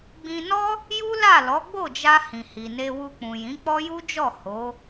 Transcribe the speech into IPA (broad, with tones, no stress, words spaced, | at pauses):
ɡ͡bĩ˧nɔ˦ | ju˦la˦˨lɔ˨˦ ɡ͡bo˦˨d͡ʒa˧ hĩ˨hi˨ ne˧wu˧k͡pũ˨jĩ˨˦ k͡pɔ˦ju˦d͡ʒɔ˦˨ ho˨˦